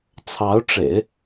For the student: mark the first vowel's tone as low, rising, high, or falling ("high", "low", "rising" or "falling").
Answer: rising